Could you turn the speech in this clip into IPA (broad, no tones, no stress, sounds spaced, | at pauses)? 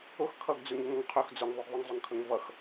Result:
ʊ x kʰ ʌ ɡ d͡z ʉ ŋ e ŋ ʌ ŋ qʰ ɵ x d͡z ʊ ŋ ðˤ ʉ ɡ ðˤ ʊ ŋ zˤ ɵ ŋ kʰ ɵ ŋ v ʌ x